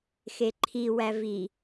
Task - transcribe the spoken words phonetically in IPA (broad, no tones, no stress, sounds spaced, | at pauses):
x e ǃʰ i w æ v i